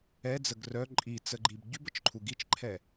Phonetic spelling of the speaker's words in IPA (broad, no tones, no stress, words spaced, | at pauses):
ɛd͡zəɡ rœ ǃʼit͡səɡ͡ǃib ɟybət͡ʃǃʰu ɡit͡ʃǃʰɛ